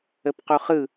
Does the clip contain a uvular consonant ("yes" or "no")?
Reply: yes